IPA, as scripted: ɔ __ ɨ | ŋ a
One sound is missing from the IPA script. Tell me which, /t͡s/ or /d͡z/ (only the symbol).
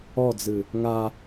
d͡z